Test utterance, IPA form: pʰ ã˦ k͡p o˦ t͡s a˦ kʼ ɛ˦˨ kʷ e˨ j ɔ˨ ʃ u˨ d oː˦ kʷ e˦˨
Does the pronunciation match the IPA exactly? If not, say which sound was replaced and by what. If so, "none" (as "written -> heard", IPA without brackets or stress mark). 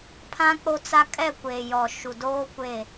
none